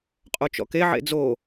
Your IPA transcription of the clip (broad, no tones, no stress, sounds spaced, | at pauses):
qʼ o t͡ʃ ɔ̰ k e ʕ ḛ d͡z o